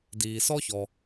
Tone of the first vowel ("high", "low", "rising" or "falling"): low